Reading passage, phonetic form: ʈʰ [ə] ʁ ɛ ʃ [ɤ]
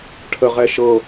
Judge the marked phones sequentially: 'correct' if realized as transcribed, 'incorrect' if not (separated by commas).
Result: correct, correct